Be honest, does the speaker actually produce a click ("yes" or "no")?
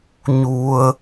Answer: no